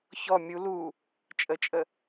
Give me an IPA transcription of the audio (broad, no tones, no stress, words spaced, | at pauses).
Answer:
çɔ mʲu lu | t͡ʃʼət͡ʃʼə